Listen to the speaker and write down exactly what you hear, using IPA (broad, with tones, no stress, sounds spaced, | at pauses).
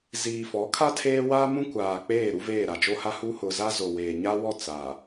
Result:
z iː˨ f ɔ˨˦ kʰ a˦ tʰ eː˦ w aː˦ m ũ˦ kʷ aː˨ k͡p eː˦˨ ɾ u˦ v eː˦˨ ɾ a˨ d͡ʒ o˦ h a˦ h u˦ h ʊ˨ z a˦ z o˨ w eː˨ ɲ a˦ w ɔ˦˨ t͡s a˨